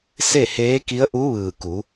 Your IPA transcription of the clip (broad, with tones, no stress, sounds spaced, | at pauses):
s e˥˨ h eː˧˥ k i˧˥ ə̯ ʔ u˧˥ ʋ ɯː˧˩ k u˩˧